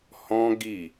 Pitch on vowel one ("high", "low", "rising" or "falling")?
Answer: high